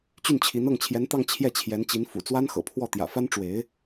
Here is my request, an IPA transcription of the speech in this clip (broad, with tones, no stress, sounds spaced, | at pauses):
t͡ɕ y˥˩ n t͡ɕʰ i˧˥ n ɤ˥˩ ŋ t͡ɕʰ j ɛ˧˥ n t̪ ɑ˥˧ ŋ t͡ɕʰ j ɛ˥˩ t͡ɕʰ j ɛ˧˥ n t͡ɕ i˧˥ n f ṵ˨˩ t͡s w a˥ n x ɤ̰˨˩ pʰ w ɔ˥˩ t̪ j ä̰˨˩ f a˥ n ʈ͡ʂ w e˧˥ ɪ̯